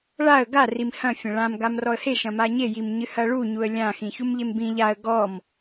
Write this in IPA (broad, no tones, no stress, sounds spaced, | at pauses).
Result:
ɭ a ə̯ ɡ a r i m h ɐ̃ fʲ ɐ̃ ɭ ã m ɡ a m r ɔ ə̯ h e ʃ ɐ̃ m a ɲ e j i m ɲ ɨ h ɐ ɭ u ɲ u ə̯ lʲ ã x ĩ ç u m ʎ e m b ĩ ʎ a ə̯ ɡ ɔ m